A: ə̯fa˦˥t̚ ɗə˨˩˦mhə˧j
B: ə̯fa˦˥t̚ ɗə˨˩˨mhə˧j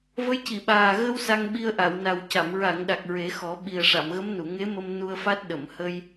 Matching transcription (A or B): B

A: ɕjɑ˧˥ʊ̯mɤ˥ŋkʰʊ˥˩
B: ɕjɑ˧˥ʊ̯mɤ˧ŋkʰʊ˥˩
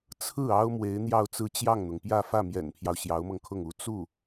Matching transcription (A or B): B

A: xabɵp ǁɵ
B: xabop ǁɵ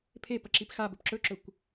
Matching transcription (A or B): A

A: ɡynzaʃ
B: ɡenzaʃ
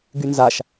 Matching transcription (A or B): A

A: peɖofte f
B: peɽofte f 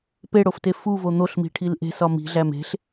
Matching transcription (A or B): B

